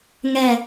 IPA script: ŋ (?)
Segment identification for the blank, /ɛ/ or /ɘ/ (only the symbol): ɛ